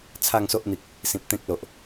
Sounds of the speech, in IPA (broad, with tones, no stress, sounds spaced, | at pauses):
t͡sʰ a˥˧ ŋ s o˦ ʔ n̪ i˨ k̚ | s ĩ˨ p̚ t̪ ẽ˦ k̚ l o˨ ʔ